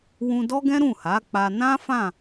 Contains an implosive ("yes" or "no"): no